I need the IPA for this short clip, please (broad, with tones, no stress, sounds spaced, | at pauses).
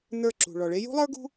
n ə˞˦˨ ǁ ṳ˨ ɭ ɔ˨ ɭ e˦ j ṳ˦ lˠ ə˞˦ ɡ ṳ˦